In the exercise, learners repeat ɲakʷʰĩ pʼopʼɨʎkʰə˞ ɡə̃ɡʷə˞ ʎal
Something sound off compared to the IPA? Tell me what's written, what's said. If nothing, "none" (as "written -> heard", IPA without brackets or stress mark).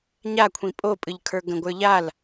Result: none